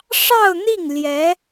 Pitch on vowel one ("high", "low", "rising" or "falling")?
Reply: falling